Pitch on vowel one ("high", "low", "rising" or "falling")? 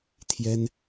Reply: high